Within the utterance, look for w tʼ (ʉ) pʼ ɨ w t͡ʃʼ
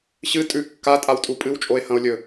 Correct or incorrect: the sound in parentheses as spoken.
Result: incorrect: u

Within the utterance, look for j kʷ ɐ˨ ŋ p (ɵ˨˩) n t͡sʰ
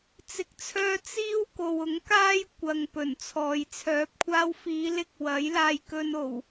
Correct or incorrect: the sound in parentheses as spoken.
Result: correct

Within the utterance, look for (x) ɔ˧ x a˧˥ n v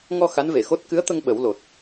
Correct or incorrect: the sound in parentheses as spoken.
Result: incorrect: ŋ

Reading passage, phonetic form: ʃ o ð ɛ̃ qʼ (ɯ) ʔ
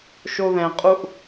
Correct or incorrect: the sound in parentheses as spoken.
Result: incorrect: u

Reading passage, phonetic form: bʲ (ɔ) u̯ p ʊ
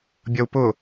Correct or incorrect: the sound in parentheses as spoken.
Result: incorrect: ʌ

